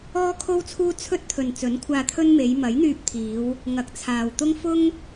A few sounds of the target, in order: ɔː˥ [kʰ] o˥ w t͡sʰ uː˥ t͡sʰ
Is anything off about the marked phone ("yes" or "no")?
no